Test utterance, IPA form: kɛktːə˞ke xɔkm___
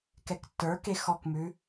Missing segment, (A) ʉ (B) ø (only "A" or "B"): A